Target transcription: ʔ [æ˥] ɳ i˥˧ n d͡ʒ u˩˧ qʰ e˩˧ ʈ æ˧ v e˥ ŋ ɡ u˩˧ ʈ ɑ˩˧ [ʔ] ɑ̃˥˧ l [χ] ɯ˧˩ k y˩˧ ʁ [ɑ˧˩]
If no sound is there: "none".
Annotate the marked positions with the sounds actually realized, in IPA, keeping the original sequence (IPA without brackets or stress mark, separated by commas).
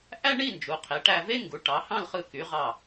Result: æ˥, h, χ, ɑ˧˩